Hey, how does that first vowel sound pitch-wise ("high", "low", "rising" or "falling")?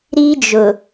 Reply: high